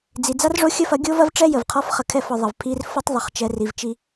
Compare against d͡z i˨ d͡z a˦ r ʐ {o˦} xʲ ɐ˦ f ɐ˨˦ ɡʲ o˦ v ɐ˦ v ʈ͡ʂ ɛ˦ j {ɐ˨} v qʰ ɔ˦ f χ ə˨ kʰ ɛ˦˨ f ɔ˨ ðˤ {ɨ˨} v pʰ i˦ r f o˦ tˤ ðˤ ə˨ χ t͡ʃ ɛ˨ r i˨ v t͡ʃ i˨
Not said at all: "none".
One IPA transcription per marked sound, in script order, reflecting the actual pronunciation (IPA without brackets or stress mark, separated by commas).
o˦, ə˨, ə˨